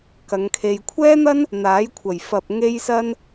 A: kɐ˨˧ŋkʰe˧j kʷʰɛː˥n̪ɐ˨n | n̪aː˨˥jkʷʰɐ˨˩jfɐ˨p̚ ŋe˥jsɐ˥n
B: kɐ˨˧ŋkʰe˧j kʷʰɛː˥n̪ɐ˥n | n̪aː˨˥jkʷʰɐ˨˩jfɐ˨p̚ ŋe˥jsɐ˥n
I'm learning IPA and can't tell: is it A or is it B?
B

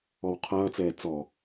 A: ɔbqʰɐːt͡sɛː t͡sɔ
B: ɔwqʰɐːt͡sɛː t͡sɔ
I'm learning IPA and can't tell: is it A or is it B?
B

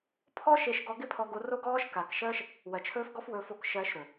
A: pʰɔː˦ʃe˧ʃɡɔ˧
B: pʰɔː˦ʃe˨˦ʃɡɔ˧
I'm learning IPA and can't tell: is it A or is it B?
A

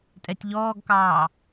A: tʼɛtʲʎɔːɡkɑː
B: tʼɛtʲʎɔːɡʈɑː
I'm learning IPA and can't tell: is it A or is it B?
A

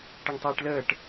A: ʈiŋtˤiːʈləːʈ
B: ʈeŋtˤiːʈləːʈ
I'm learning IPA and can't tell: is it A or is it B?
B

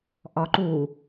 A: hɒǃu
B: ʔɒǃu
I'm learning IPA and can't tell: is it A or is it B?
B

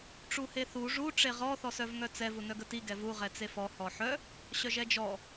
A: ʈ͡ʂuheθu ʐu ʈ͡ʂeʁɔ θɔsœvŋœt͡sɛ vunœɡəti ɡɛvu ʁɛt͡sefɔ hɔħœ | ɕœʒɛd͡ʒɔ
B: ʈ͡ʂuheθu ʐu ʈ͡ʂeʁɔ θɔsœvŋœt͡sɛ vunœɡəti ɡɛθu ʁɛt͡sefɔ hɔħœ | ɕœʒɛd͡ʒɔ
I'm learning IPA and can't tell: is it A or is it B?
A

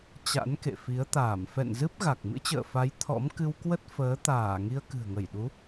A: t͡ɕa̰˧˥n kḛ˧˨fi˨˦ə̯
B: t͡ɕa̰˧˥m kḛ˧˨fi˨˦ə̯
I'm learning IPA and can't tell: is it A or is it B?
A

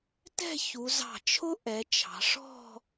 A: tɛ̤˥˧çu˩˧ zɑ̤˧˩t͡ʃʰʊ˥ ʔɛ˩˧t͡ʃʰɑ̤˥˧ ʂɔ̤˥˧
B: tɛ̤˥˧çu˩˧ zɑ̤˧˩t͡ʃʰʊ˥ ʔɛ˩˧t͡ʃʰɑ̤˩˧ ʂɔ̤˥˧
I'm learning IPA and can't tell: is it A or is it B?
B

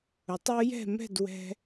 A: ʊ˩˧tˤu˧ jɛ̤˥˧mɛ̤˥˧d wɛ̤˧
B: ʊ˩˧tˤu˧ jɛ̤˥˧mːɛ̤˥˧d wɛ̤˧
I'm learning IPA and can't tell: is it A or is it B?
A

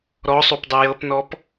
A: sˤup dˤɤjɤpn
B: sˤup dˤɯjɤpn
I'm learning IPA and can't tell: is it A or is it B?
B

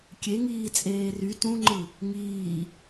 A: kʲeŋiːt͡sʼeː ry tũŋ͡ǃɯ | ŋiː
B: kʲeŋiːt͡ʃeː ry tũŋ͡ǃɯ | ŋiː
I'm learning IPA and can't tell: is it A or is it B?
A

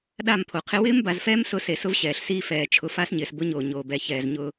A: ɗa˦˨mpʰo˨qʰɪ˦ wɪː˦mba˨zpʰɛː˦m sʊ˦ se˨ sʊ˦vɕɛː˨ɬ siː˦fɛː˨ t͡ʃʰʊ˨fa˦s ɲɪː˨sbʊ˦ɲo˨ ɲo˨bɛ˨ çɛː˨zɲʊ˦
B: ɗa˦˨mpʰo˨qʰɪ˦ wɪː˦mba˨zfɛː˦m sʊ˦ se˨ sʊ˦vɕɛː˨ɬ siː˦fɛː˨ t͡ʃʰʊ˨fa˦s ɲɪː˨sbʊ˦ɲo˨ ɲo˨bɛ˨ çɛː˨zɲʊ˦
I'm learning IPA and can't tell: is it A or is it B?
B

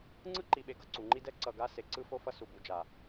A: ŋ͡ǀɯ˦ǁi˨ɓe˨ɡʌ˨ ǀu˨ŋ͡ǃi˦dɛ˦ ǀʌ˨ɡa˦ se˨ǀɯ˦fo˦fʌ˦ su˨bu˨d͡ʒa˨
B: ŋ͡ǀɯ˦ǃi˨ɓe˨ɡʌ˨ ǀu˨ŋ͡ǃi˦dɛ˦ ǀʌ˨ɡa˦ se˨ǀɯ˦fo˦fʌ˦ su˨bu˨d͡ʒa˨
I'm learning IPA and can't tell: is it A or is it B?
B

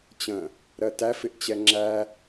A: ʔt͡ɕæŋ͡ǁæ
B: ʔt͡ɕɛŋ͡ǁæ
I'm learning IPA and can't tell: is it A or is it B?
B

